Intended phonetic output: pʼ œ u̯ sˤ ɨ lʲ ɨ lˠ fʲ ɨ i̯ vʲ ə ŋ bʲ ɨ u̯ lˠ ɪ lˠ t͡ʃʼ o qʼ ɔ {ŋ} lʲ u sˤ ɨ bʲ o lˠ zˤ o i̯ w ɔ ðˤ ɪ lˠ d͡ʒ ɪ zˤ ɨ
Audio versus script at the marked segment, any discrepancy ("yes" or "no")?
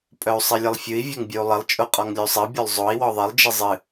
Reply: no